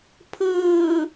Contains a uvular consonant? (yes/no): no